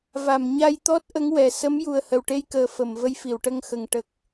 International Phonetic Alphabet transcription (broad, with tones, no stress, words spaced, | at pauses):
va˨˩˨mɲa˧jt̪ɔ˦˥t̚ʔə˧˥ŋ wɛ˨˩ sə˧˥m ju˨˩ə̯hə˨˩wʈe˧jkəː˨˩ fə˨˩˨mvə˧j fi˨˩˨wʈə˧ŋxə˨˩ŋ ʈə˨˩k̚